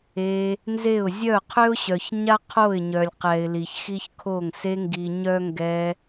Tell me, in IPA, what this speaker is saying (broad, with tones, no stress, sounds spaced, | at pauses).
e˧ | n z e˦˨ ʊ̯ zʲ œ˦˨ qʰ ø˦ ʊ̯ ɕ œ˨ ç ɲ a˦ qʰ o˦˨ ɪ̯ ɲ œ˨ lʲ q ɛ˨ ɪ̯ l i˨ ç x i˦ ç kʰ o˦˨ ŋ s e˧ ŋ ɡ i˨ ɲ œ˦ ŋ ɡ ɛ˧